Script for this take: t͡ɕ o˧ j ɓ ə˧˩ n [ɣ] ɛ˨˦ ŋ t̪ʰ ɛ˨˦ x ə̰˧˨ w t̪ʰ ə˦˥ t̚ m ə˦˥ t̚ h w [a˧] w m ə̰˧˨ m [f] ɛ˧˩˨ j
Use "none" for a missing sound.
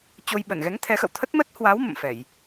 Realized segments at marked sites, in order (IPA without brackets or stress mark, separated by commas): ɣ, a˨˦, f